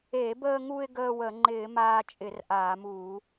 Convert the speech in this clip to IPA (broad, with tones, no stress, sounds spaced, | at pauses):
e˧˩˧ b əː˧ ŋ u˧ ɪ̯ ɡ əː˧ w ə˧˩˧ ŋ͡ǃ ɪː˧˩˧ m aː˧ t͡ʃʼ ɪ˧˩˧ r ʔ aː˧˩˧ m uː˧˩˧